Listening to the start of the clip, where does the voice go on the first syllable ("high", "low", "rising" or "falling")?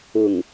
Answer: low